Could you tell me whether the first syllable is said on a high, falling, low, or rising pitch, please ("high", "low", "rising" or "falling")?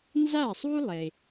falling